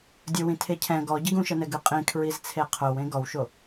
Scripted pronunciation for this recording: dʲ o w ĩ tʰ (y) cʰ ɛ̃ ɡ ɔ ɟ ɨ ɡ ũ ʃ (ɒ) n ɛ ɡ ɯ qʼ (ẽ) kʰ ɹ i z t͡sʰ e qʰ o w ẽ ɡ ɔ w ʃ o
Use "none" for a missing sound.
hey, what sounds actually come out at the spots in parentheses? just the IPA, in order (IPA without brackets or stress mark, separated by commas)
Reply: e, ʌ, ĩ